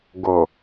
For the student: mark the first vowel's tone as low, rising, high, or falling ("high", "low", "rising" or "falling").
low